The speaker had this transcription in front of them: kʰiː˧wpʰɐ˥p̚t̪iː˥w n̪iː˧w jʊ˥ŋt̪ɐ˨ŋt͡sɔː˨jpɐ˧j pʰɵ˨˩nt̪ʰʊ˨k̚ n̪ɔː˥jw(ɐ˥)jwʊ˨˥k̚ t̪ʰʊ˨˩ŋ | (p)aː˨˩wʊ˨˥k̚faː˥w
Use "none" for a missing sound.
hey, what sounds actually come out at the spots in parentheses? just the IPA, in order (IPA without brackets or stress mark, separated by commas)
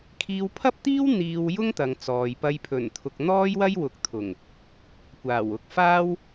ɐ˥, kʷ